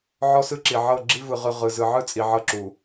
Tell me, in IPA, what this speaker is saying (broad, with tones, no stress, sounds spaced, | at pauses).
ʕ ɔ˦ s ɯ˦ ǁ i˨ ʕ ɤ˦˨ ɡ͡ǁ i˦ v ɯ˨ ʁ ɯ˨ ʁ ɯ˨ z ɯ˨ ʕ ɯ˦ t͡sʼ i˨ ʕ ɤ˦ ǁ u˨